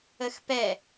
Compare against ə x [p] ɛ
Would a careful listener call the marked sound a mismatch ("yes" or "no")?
no